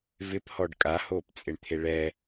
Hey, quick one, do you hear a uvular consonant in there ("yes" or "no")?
no